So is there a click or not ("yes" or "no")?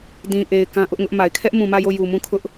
no